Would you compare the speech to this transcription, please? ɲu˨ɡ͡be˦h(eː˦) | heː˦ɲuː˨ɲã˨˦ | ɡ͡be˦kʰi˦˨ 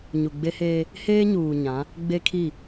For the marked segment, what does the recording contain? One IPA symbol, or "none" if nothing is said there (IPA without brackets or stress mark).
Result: eː˦